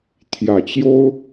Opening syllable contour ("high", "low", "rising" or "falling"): low